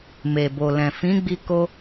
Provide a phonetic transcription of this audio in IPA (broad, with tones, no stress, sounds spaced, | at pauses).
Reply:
m e˨ b o˨ l ɛ̃˨ f ĩ˨˦ ɡ͡b i˧ k o˧